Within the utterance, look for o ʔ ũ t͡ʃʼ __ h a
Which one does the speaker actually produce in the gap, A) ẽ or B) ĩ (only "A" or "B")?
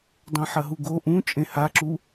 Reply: A